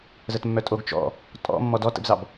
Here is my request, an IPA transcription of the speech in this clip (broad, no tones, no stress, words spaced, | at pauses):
zətmːœtʼoɡ t͡ʃɔ̰ | tʼɔ̰ mːɔdɔtə̰bzɑb